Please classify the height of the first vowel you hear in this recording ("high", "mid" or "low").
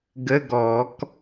mid